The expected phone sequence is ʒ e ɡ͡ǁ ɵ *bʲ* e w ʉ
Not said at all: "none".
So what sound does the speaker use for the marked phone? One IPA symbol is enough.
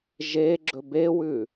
b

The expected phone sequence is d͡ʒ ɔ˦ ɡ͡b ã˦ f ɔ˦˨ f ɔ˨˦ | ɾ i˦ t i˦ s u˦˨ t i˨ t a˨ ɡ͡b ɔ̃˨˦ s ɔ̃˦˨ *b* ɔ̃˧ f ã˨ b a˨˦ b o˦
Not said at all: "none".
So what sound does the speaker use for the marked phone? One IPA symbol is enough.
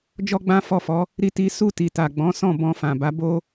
b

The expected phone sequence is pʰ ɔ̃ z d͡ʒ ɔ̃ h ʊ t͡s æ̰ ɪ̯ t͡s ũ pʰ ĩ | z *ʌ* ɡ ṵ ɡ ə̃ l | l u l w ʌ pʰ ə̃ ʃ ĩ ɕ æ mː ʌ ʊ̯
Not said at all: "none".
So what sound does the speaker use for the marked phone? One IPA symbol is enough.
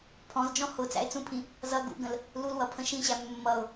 ʌ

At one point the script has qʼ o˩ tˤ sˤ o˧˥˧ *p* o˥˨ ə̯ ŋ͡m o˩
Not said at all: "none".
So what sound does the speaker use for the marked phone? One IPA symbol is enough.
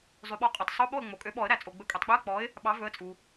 ɓ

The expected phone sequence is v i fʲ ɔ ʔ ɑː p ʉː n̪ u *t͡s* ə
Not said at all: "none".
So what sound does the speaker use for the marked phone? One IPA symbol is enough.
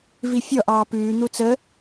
t͡s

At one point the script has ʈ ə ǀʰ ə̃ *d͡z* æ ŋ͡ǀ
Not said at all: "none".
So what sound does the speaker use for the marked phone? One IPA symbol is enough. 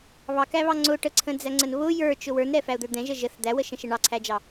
d͡z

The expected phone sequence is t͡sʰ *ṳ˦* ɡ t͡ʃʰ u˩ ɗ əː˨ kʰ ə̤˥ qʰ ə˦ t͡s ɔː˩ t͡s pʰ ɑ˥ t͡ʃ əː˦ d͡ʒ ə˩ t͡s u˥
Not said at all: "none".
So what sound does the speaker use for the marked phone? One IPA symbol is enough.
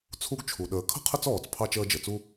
u˦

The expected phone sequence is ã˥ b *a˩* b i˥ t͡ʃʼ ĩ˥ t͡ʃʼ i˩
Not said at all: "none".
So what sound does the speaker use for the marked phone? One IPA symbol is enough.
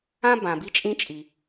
ã˩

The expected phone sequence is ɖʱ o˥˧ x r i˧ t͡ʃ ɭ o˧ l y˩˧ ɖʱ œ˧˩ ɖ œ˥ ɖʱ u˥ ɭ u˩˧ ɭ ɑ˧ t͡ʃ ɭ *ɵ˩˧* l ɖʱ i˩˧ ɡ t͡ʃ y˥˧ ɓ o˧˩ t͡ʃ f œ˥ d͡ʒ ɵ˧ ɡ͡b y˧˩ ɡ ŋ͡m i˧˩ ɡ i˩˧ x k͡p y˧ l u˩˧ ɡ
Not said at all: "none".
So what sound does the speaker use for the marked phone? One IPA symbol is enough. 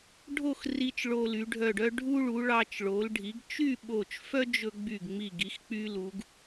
o˩˧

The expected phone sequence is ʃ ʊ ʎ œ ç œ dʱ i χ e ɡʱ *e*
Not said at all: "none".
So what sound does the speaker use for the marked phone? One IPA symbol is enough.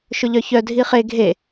e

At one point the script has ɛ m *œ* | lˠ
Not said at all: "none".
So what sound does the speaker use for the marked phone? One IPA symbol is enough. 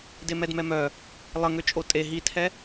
œ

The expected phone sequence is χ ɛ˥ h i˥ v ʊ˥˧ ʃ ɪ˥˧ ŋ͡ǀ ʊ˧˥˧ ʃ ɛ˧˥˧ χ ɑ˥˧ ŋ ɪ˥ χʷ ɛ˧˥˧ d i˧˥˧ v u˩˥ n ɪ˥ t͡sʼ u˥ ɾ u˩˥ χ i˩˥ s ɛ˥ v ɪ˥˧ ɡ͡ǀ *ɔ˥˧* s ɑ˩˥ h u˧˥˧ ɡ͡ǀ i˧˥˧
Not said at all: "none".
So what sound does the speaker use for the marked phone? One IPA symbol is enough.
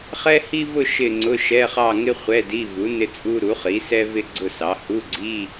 ʊ˥˧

